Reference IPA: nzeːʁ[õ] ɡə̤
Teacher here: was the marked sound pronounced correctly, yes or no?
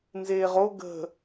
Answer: no